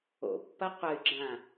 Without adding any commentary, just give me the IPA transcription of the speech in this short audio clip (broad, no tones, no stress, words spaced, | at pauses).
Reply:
o̰pːɐ qʷɘy̯ɡ͡ǁã